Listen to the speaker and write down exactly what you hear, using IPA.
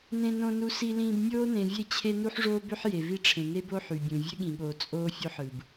nẽ˨nõ˨nu˨ si˨lĩː˨b mʲoː˦nẽ˨vʲe˦˨t͡ɕʰe˦ nu˦ħʐoː˦bø˦ħ je˨vi˦ʈ͡ʂʰẽ˨ ne˦bo˦ ħy˨bʲũ˨ vʲø˦ɠĩ˨ɠoː˨ t͡sʼoː˦fʲo˦ħ ɯ˨b

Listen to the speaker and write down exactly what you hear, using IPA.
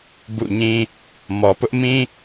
bṵ˦˨ɲĩ˦ | mɔ˨pʊ˦ʔmĩ˦

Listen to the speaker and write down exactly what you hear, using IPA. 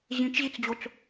ʑĩt͡ʃʑit͡sd͡ʑot͡s

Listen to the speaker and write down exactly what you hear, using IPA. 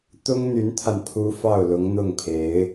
t̪ʊ˥ŋn̪y˧˥nt̪ʰa˧npʰu˧˥ fɑ˥˩ʊ̯lʊ˧˥ŋn̪ʊ˥˩ŋpʰe˧˥ɪ̯

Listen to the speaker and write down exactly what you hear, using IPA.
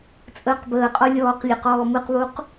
t͡sʼəːqbəːqʼɔ lʲɔːqlʲɯqɔː mɯqβuq

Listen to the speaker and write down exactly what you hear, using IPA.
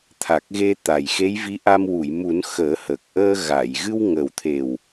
t̪ʰa˨˩k̚ɣe˧ t̪a˨˩jxe˧˥jvi˧˥ʔa˧m wu˨˩˨jmu˨˩˦n xəː˨˩˦hə˨˩k̚ ʔəː˧ ɣa˨˩˨j ɣɨ˧wŋəː˨˩wt̪ʰe˨˩w

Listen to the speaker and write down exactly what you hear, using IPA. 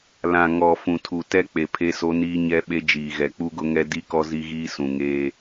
lã˨ ŋɔ˨ fũ˨tʰu˨tɛ˦ k͡pe˨pʰe˦so˦niː˦ ɲɛ˦ɓe˦d͡ʒiː˨ɣɛ˨ k͡pu˦ɡʊ˦ŋɛ˦ di˦kɔ˦ zi˦ɣiː˦sũ˨ ŋeː˦

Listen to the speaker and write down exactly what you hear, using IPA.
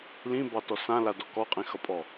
lĩbɑtɔ sãladɔ kɔqʼĩxʌpʼɔ

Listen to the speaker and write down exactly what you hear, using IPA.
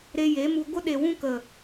ɾe˧je˨˦mu˧ ɡʷə˧ ɗe˨wũ˧kə˨

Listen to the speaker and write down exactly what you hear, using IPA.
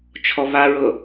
t͡ʃʰɔβaɹɤ

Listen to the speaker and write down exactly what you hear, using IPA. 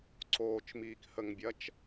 ǀoːt͡ʃmiːkhəŋbʲɐt͡ʃ

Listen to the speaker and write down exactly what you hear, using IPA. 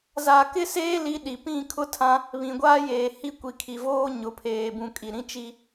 za˨kɪ˦ seː˦ li˦ɗi˨ pĩ˦˨kʰʊ˦tʰã˦ | βĩ˨ɡʷaː˦ jeː˨hi˦ kʷi˨kʰi˨voː˦ ɲʊ˨pʰeː˨bũ˨ kʼi˨ ɾĩ˦t͡ʃi˦

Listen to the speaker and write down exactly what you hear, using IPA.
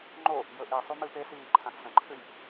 ŋ͡ǃo | jɵʔisˤu mɨpesiː ǃʰãxsɐ̃ǃʰʉj

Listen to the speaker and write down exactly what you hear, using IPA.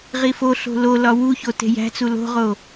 ʁifoɬo̤ lolɒ wuço te̤jæ̤t͡su lo̤ʁo

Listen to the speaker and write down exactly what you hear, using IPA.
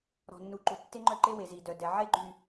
ɾɔ̤˨nːu˨ǃu˨ tːe˦ŋ͡ǃœ˦˨ ǃe˦we˨zi˨ dœ˨dɛ˨ʕe˦ɡ͡ǃy˨

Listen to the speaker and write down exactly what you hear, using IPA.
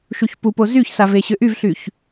ʃuçpupo zyçsa veɕʏʔyvɬyç

